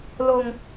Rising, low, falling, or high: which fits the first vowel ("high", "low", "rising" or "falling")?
low